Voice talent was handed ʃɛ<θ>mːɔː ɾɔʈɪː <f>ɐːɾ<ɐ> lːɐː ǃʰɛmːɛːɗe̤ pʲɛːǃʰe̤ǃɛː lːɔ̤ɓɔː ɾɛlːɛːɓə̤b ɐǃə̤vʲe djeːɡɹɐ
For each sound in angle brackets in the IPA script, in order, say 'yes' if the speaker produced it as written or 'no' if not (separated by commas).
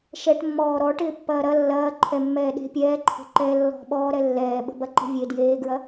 no, no, yes